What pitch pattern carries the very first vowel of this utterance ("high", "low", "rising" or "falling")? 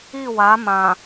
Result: falling